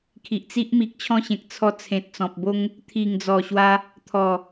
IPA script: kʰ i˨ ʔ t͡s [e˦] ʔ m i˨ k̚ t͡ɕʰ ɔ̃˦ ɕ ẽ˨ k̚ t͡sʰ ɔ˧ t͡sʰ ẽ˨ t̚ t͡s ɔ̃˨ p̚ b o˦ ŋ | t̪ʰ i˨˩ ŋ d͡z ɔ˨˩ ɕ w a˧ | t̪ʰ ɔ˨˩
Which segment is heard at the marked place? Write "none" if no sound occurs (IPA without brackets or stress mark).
i˦